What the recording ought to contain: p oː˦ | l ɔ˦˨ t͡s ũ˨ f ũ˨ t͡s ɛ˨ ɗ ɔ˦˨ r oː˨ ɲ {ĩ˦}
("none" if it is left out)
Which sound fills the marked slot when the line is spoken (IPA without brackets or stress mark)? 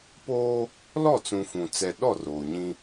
ĩ˦